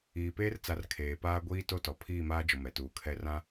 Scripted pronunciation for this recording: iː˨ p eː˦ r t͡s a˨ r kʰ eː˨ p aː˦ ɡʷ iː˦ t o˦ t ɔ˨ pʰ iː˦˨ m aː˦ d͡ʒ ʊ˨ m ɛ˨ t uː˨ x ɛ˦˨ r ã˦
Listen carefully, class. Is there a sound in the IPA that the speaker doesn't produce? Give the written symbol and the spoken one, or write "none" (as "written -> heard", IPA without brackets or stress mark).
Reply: x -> kʰ